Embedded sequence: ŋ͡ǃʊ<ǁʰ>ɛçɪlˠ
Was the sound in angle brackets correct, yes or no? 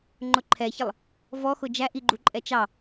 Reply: no